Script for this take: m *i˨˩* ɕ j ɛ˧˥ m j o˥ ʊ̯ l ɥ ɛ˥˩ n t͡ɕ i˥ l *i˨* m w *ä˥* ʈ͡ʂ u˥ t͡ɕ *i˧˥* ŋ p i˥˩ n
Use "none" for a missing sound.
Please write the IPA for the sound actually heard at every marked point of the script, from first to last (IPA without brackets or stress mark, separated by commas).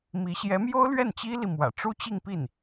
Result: i˧˥, i˨, ä̰˨˩, i˥˧